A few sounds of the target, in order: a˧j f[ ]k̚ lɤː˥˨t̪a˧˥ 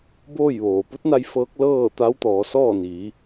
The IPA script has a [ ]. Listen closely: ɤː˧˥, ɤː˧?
ɤː˧˥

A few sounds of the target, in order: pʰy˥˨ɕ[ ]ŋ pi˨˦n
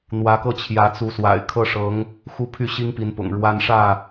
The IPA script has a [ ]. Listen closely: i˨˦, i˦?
i˦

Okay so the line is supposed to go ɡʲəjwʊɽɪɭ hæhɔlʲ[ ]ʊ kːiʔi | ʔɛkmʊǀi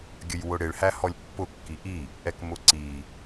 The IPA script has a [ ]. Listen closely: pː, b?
pː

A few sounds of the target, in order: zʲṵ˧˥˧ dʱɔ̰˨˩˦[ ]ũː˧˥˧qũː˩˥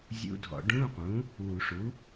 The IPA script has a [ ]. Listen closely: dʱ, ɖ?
ɖ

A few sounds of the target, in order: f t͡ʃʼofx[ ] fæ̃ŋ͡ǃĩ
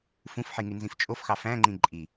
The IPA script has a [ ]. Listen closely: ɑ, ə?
ɑ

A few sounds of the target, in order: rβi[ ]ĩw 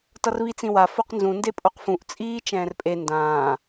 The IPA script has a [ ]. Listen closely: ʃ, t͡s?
t͡s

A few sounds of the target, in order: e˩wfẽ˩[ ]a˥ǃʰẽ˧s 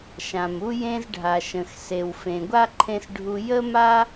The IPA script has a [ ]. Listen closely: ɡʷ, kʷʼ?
ɡʷ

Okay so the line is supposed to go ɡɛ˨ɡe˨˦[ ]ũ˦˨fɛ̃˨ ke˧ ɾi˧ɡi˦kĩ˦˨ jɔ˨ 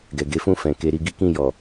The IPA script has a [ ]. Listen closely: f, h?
f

